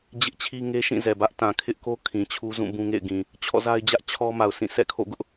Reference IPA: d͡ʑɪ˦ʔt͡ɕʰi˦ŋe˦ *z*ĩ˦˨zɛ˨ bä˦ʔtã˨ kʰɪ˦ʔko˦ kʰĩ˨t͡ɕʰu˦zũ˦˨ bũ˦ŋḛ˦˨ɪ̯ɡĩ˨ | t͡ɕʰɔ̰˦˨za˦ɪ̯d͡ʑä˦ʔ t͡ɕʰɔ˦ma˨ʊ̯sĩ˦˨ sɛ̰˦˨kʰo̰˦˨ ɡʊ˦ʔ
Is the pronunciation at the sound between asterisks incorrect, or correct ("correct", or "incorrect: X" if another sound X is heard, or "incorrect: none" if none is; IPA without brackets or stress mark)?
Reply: incorrect: ʃ